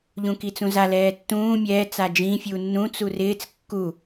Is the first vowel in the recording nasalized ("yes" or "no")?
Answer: yes